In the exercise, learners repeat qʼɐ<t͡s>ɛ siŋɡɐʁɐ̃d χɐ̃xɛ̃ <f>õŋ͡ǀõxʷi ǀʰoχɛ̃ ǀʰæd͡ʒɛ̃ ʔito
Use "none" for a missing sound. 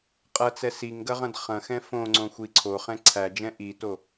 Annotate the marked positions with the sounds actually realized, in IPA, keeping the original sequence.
t͡s, f

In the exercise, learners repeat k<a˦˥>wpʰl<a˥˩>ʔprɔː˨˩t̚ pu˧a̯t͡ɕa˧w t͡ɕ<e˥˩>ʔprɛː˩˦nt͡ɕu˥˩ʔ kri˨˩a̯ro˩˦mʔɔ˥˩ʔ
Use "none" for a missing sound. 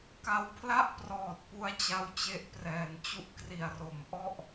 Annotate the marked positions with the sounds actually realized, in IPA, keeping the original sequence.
a˧, a˥˩, e˦˥

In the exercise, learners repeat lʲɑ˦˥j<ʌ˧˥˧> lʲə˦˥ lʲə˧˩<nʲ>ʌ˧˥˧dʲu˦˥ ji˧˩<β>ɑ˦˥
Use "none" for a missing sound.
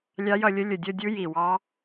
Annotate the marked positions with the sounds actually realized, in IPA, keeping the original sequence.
ʌ˥˧, dʲ, w

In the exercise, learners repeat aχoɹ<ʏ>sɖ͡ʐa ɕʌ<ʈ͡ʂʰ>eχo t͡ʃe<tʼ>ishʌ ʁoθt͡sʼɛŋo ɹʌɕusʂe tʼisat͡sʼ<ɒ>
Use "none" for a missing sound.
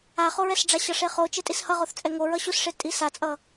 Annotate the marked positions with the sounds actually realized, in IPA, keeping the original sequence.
ɛ, ʂ, tʼ, ʌ

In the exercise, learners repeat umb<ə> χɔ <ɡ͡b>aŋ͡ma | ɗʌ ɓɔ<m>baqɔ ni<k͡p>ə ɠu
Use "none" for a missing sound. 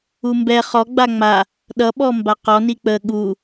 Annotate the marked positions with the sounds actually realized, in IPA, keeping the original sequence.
ɛ, ɡ͡b, m, k͡p

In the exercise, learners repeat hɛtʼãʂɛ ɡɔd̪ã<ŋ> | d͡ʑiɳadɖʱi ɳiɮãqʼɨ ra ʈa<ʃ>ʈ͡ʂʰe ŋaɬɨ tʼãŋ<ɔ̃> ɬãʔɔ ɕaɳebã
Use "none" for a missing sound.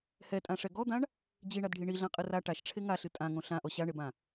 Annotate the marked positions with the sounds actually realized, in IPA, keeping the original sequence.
ɳ, ʃ, õ

